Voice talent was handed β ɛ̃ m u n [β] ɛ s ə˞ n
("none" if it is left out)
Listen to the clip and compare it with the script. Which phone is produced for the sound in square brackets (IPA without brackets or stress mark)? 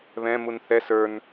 θ